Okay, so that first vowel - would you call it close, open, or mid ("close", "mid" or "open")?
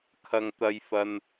open